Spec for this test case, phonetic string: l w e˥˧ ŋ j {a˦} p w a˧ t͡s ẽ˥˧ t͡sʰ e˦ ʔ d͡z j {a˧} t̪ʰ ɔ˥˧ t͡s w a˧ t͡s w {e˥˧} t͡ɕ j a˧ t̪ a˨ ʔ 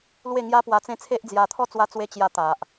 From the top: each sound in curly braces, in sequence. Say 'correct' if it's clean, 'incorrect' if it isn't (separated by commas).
correct, correct, incorrect